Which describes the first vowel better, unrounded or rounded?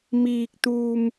unrounded